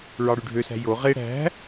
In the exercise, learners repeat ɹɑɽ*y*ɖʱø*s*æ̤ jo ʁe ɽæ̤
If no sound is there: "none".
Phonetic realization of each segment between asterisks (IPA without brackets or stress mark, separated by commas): y, s